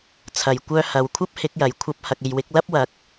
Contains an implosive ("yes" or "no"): no